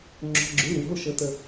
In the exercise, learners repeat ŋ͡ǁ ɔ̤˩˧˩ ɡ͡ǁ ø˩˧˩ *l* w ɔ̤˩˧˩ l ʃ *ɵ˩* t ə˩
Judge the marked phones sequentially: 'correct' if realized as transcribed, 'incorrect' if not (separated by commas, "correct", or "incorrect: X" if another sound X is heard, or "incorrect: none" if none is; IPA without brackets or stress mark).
correct, incorrect: ɤ˩